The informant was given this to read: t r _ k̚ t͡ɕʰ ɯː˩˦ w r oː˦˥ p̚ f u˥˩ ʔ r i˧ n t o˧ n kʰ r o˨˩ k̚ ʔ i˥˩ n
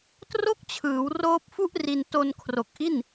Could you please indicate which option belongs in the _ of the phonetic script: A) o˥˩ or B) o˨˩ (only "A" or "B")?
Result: A